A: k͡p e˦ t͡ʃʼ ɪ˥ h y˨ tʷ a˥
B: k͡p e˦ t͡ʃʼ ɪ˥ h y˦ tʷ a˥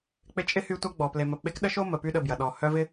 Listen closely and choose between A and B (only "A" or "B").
B